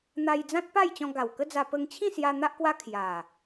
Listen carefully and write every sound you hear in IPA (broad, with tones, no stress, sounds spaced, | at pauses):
n̪ a˧ j d͡z ã˦ t̚ p a˥˧ j t͡ɕ ɔ̃˧ ɡ a˨˩ w k ə˦ d͡z a˧ p ə˧ ŋ t͡ɕʰ ĩ˥˧ s j a˧ n̪ a˦ ʔ k w a˦ kʰ j a˨˩